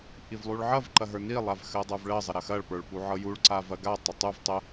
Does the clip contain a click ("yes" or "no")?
yes